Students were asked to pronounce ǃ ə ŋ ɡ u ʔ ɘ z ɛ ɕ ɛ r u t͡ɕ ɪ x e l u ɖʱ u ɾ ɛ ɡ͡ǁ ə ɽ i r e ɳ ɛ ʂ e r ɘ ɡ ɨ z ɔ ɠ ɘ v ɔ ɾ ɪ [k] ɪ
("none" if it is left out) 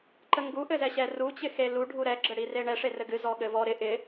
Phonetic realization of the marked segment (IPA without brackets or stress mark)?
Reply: ʔ